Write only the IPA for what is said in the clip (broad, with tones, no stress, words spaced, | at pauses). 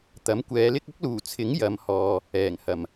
t̪ɐ˨˥mkʷɛː˨˧lɪ˥k̚ ʊ˥k̚luː˨˩t͡sʰɪ˨˥ŋ jɐ˨˧mhɔː˨ | ɛː˨˩ŋhɐ˨˩m